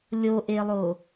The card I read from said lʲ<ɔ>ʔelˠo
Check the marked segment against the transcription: incorrect: o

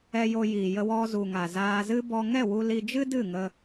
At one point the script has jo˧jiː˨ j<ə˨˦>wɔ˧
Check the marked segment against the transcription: incorrect: ə˧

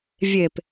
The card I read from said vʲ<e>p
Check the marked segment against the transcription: correct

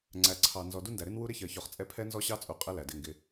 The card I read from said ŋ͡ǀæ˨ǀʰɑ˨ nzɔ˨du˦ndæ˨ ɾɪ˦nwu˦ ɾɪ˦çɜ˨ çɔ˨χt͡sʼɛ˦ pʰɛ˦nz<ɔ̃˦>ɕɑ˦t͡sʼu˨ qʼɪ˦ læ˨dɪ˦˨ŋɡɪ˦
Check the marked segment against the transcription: incorrect: ɔ˦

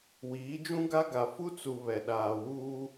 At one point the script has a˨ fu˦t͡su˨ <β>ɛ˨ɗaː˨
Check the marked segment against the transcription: correct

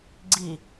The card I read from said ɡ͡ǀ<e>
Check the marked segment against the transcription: incorrect: i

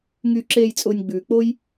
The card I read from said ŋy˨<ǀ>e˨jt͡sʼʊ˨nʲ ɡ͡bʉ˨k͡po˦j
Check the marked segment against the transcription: incorrect: ǁ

